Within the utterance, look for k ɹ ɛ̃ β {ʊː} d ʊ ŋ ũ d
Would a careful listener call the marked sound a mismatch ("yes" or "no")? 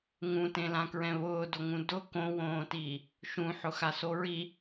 no